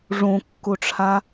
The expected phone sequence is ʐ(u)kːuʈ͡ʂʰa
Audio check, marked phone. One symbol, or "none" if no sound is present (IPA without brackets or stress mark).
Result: ũ